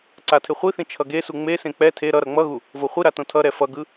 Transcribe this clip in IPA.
ǀ a tʰ e χʷ i θ ĩ t͡ʃʰ ʌ ɡ e s u ŋ͡m e s ẽ k͡p ɛ tʰ e ɾ ʌ ɾ ʌ ŋ͡m ʌ ɣ u | v o χʷ i ɾ a t õ tʰ ʌ ɾ ɛ f ʌ ɡ ɯ

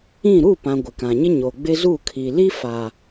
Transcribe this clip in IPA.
ĩ˦˨ ɾ u˦˨ p ã˨ ɡʷ ɪ˨ k ã˨ ɲ ɪ˦ ɲ o˨ ɡ͡b ɪ˦ z u˦˨ kʰ i˨ l i˦ f a˨

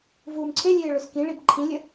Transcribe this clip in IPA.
v uː m ǀʰ e lʲ eː ɭ ɵ s k ĩ ɭ i b ǃʰ ĩ lʲ ə

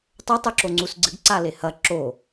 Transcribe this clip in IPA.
tˤ ɵ tˤ ʉ ǁ o ŋ͡ǀ u s ɡ͡ǀ ɨ ɡ ǀ a l e h ɐ ǁ o

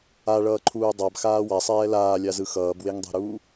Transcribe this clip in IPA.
a ɭ ʌː ǃʰ uː dˤ a b x aː w a sˤ ɛː l aː lʲ a z ɯ x ʌː b w e ŋ dˤ ɛ̤ ɾ uː

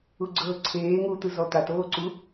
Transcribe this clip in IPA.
u ɡ͡ǀ ɤː ǀʰ eː ŋ u t̪ ɯ z ɔ t̪ a t oː ǀ u

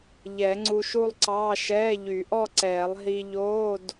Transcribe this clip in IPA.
ʎ ɛ˨˩˦ ŋ͡ǀ u˧ ʃ u˥˧ lˠ ǀ ɑː˧˥˧ ʃ ɛː˧˥˧ ʎ y˨˩˦ ʔ ɔ˥˧ ǀ ɛː˨˩˦ lˠ ɦ i˧ ʎ oː˧˥˧ d

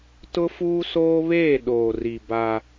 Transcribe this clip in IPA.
t ʊ˦ f uː˦ s oː˦ β eː˦˨ ɗ oː˨ r i˨ b a˦

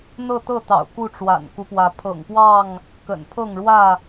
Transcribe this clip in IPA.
n̪ ɤ˥˨ t̪ ɤ˥˨ t̪ ɑ̰˨˩ ʊ̯ k u˥˨ ʈ͡ʂ w a̰˨˩ n k u˦ p w ä˨˦ pʰ ɤ̰˨˩ ŋ p w ɑ˥˨ ŋ | k ə̰˨˩ n pʰ ɤ˥˨ ŋ ɻ w ä˥˨

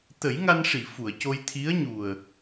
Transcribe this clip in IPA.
t̪ ə˨˩˦ j ŋ a˧ n ʂ i˨˩˨ f u˨˩˨ ə̯ c o˧ j t̪ʰ i˧˥ ə̯ ɲ u˨˩ ə̯

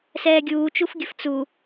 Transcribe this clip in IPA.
s ɛː ɡʲ uː t͡ʃ u f ɡʲ ə f t͡s u

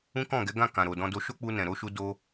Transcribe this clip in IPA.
ũ˦ k ɔ̃˦˨ ɡ ɛ˨˦ ɡ ã˦˨ k ã˨ ɾ o˨ d ɔ̃˧ d o˧ ʃ o˦ k͡p u˧ n ɛ̃˨ ɾ o˧ ʃ u˧ d o˧

